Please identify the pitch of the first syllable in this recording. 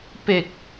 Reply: low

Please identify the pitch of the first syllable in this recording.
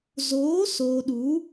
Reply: rising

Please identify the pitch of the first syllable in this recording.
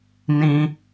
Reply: low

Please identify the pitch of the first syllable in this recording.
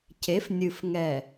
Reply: rising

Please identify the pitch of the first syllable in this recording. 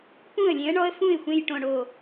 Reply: falling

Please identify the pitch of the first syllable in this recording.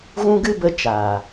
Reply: high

